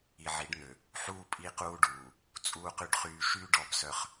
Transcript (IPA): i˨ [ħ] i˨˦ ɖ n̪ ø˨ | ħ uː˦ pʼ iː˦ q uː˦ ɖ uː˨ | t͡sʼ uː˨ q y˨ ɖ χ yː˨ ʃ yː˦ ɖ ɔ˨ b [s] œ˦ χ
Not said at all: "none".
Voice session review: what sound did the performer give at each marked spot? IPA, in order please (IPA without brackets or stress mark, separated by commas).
ʕ, s